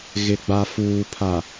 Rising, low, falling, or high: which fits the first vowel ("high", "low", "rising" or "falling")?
low